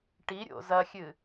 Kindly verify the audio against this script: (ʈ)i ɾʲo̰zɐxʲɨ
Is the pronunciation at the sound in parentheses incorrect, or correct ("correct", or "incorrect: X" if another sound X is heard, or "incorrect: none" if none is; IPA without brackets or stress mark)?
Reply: correct